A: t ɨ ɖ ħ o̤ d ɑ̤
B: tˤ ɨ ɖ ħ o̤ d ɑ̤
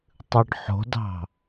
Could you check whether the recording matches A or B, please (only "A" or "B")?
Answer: B